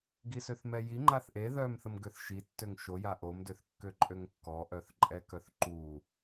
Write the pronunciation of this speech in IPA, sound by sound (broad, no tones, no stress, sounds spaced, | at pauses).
ɡ i s ø θ m ɛ j i ŋ͡ǃ a θ ʔ e ð œ m θ ə m ɡ ø θ ʃ i tː ø ŋ ʃ o j a ʔ o m d ø θ kː ø ǃʼ ø ŋ kː ɔ ʔ œ θ ǃʼ ɛ k œ θ ǃ u